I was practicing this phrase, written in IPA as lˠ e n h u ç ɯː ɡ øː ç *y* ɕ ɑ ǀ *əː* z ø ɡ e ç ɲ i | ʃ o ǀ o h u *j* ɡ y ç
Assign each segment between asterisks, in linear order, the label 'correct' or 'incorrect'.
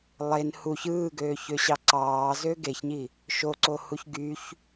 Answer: incorrect: ø, incorrect: ɑː, incorrect: ç

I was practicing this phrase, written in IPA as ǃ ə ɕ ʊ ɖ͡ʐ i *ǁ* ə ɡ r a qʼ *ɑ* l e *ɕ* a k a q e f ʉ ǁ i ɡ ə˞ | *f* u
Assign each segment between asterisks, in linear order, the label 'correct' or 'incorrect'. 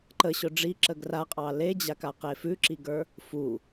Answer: correct, correct, incorrect: d͡ʑ, correct

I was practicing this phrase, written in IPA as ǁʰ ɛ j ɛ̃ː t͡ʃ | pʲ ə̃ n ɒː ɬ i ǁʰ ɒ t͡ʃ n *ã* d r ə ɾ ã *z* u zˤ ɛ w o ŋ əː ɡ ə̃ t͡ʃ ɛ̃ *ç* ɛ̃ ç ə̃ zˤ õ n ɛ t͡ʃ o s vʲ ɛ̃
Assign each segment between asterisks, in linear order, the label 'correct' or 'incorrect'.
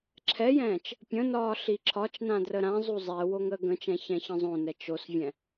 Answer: correct, incorrect: zˤ, correct

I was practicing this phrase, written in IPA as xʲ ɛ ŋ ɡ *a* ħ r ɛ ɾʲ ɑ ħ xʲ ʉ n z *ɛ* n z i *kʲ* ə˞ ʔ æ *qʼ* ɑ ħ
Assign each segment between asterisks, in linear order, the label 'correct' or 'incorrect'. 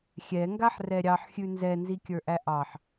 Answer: correct, correct, correct, incorrect: ʔ

